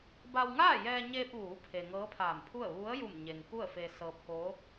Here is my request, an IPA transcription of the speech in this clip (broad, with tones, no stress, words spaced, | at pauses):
ba˧wŋaː˥˨jɛː˧ɲeː˧p̚ ʋuː˩˧pʰe˩ ŋɤː˧˥pʰaː˧˩mpʰu˥˨ə̯ ʋu˧˥ə̯ ju˧˩mɲe˩ŋ ku˥˨ə̯fe˧sɤː˧p̚ko˧˥